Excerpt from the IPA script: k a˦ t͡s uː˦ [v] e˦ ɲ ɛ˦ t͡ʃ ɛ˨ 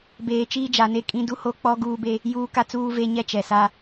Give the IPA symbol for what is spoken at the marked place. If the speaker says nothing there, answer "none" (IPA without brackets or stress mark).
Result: v